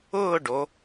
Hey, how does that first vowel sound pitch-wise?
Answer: falling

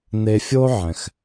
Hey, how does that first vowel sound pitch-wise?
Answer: low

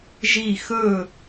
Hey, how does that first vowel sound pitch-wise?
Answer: falling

